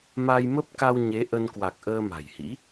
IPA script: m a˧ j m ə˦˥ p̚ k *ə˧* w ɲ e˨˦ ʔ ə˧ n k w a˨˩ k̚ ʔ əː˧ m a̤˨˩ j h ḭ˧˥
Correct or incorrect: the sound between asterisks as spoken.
incorrect: a˧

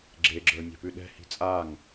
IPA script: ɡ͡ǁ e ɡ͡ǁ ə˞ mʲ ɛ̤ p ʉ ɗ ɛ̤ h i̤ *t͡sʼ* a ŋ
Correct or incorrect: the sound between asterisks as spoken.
correct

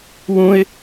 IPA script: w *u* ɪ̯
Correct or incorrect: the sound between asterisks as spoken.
incorrect: ũ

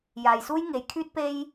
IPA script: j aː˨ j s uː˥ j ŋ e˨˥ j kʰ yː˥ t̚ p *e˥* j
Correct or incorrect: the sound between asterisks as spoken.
correct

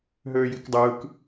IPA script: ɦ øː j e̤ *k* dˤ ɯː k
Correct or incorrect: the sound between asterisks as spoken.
correct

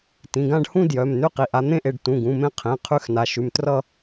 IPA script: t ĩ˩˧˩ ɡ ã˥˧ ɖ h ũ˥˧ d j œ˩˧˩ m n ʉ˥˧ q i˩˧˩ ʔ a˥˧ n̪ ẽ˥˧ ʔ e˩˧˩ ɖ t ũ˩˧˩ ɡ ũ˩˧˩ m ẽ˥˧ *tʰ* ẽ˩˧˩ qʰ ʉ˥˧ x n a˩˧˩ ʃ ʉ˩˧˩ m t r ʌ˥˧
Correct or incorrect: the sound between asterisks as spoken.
incorrect: qʰ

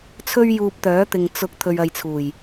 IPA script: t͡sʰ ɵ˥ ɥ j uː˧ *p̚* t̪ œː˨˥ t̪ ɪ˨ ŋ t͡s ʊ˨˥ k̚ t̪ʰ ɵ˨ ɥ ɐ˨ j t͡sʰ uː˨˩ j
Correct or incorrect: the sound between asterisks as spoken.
correct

